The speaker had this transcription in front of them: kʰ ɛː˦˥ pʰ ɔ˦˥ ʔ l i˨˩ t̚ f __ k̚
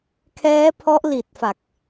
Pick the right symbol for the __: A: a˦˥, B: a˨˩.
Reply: B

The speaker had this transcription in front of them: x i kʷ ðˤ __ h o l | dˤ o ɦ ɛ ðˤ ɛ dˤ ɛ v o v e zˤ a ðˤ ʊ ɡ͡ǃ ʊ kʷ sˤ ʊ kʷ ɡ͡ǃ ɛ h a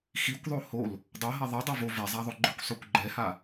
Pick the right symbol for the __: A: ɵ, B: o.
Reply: B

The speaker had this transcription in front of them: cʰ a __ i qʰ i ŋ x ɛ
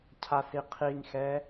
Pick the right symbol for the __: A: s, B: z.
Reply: A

